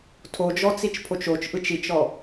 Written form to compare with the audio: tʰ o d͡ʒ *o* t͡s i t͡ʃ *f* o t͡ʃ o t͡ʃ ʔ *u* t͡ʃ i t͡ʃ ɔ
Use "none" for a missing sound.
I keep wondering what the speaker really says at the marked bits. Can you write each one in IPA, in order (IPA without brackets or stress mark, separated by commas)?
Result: ɔ, pʰ, ɯ